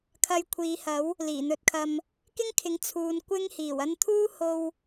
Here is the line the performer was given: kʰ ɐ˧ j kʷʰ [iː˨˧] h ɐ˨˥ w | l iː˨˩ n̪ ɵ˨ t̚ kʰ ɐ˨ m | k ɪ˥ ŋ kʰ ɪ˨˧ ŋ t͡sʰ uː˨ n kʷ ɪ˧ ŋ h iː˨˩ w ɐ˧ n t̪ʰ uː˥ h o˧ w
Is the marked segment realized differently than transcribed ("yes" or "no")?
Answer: no